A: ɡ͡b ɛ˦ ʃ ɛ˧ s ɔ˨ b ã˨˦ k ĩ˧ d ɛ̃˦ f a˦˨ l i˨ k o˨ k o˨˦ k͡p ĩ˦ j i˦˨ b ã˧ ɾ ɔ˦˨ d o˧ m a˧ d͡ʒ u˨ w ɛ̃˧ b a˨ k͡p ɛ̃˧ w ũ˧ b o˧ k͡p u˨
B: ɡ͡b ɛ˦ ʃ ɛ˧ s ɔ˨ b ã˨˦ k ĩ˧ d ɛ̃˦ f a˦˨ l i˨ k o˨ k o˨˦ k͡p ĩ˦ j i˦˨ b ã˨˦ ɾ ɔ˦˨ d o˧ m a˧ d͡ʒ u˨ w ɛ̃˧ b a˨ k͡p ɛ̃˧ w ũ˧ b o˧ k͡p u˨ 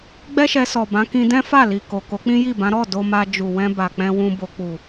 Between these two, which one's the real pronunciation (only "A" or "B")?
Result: B